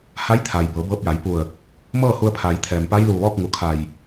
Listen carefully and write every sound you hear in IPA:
ha˧˥jt̪ʰa˩j bɤː˩˧bɤː˧p̚ja˩˧j pu˧˩ə̯ | mɤː˥˨hu˧ə̯pʰaː˩˧jt̪ʰɛː˩m pa˧˥jluː˧˩ʋɔː˥˨k̚ ŋu˧˩kʰa˧˩j

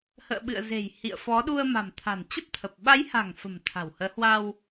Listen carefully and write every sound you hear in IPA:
hə̰ː˧˨ɓɨ̰˧˨ə̯ze̤˨˩j hḭ˧˨ə̯fɔ˨˦ɗu˧ə̯ ma̤˨˩mt̪ʰa̤˨˩nt͡ɕə˦˥p̚t̪ʰə˨˩p̚ ɓa˨˦jha̤˨˩ŋ fə̤˨˩m t̪ʰa̤˨˩whəː˨˦hwa˧w

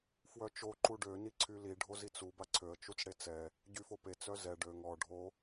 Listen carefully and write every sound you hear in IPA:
fwœt͡ʃo ǃuɖø niǀʰyli ɖʱozit͡su baǀʰøə̯ t͡ʃut͡sɽet͡sɛ | ɟyfope t͡sœzɛ ɖøŋ ɔ ɖʱo

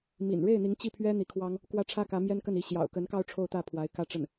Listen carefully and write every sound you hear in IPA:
mḭ˨˩n ɻe˥˩ɪ̯n̪i˧˥ŋ t͡ɕi˥˩pʰɥɛ˥ n̪i˧˥kʰwɑ˥ŋ | kwä˥ʈ͡ʂʰä˥kä˧˥ mjɛ˥nkə˥˩ni˧˥ ɕjɑ̰˨˩ʊ̯kə˧˥nkɑ˥˧ʊ̯ ʈ͡ʂʰo˥˧ʊ̯t̪ä˥˩pʰwa˧˥ɪ̯ kä˥˧ʈ͡ʂə˥˩n

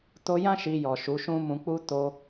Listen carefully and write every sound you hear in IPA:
to˧jã˦ ʃi˧jɔ˨ ʃu˨˦ʃũ˦mũ˧ k͡pu˦ to˧

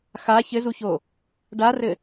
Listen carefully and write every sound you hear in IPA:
xa çɘzuço | ɖarɘ

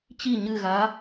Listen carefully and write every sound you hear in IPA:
t͡ɕi ɲɨɣa

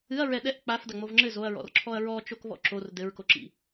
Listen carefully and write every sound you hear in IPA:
ɨɐ̯ɹɛ ɗɛʔ k͡pafdɐŋ͡mov ŋ͡ǁɘ zoɐ̯ɹɔ̰rǁʰɔɐ̯ ɹɔt͡ʃokβɔ̰ ǁor dɘɹkoǁḭ

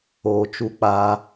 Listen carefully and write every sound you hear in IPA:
oː˨t͡ʃu˧k͡paː˧

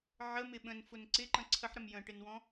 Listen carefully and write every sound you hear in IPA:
ʕəmɪ ɓə̃nfʊn ǀɪǃə̃ ǀʰəħɾəm jə̃ʈɪnwɔ̃

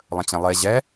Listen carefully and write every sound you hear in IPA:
lˠə̃t͡ɕɛ̃lˠe ʑɛ

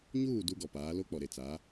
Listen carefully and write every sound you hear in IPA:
ɲuː˦˨ du˦ɡɔ˨paː˨˦ lo˦k͡pɔ˨ɾe˨t͡sa˨˦

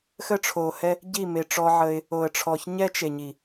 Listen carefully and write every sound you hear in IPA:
xə˦ʈ͡ʂʰo˨hɛ˦ | ɟi˦˨me˨ʈ͡ʂɔ˧ ʕə˧ɪ̯ | o˨ə̯ʈ͡ʂʰɔ˨ç ɲɛ˦t͡ʃe˨ɲi˨

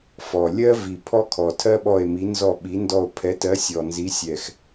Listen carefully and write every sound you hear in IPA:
fɔ˨˩ lʲɜ˥vi˨˩ pʰɔ˥kʰɔ˨˩tʰɜ˥ɓɔ˦˨e̯ mi˨˥nzɔ˦˨ɓi˨˥ndɔ˦˨o̯ pʰɛ˨˥tɜ˨˥ sʲɔ˨˩nzi˨˥sʲɛ˨˩x

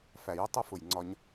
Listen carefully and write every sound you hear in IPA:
fæ˨jʌ˦ tˤʌ˦fʊ˨jŋ͡ǀɒ˧ɲ

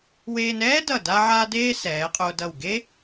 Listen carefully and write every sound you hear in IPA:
weː˧nɛː˥dʌ˧˩ da˥ʕaː˥ deː˥ sɛː˩˧qʼo˧ dʌ˧˩wɡe˥

